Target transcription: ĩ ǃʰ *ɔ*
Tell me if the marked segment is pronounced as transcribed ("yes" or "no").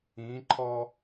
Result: yes